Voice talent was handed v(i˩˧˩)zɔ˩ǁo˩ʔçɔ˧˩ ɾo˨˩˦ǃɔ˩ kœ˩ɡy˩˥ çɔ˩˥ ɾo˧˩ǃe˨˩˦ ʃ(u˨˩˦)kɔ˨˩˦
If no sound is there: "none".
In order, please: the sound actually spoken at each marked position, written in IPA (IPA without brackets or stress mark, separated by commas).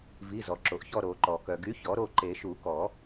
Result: i˩˧˩, u˨˩˦